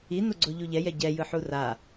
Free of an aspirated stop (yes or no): yes